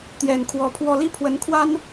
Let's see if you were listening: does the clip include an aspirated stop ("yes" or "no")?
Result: yes